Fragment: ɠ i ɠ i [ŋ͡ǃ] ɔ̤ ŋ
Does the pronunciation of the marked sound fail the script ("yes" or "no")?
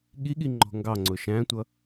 no